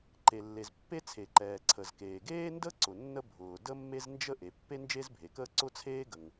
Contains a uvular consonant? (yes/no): no